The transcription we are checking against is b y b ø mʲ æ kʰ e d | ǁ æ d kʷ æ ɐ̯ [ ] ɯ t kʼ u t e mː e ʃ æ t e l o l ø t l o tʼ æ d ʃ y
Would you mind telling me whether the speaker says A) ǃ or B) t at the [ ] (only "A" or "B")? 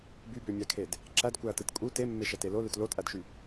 B